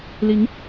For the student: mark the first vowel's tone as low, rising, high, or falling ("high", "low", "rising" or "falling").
rising